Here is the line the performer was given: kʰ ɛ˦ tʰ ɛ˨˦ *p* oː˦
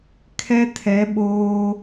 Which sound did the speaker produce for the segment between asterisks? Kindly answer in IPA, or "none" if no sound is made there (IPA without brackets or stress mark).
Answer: ɓ